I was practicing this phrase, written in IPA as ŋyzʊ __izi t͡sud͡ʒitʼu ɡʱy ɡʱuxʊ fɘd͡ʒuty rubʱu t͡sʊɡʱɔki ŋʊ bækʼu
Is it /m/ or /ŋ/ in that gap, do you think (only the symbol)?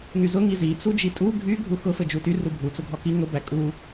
ŋ